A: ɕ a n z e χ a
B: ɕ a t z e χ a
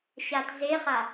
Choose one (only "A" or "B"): B